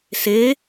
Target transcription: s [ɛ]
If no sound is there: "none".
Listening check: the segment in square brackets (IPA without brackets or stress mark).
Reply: e